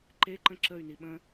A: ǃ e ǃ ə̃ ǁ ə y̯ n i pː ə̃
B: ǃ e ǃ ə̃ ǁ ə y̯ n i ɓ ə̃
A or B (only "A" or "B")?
B